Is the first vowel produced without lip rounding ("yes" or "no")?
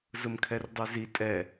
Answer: no